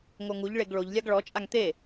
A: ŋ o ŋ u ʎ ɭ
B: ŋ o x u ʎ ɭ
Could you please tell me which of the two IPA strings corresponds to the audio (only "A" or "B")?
A